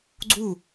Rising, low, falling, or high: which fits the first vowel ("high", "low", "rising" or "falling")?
falling